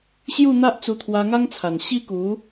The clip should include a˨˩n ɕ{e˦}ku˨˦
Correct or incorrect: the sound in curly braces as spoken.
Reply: incorrect: i˦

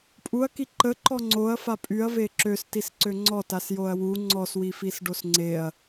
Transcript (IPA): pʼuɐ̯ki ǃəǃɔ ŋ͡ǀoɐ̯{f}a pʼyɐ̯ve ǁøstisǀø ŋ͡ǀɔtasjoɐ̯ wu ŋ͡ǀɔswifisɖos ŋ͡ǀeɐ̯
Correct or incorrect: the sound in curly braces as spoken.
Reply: correct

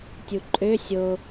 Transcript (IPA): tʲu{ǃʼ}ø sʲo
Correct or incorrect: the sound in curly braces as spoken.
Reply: correct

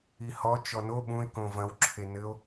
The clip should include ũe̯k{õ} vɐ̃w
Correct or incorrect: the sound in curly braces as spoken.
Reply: correct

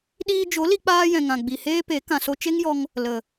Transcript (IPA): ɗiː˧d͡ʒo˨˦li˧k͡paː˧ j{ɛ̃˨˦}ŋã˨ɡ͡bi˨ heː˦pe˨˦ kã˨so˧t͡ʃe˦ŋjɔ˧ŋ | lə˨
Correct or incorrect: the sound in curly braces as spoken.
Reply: incorrect: ɛ̃˨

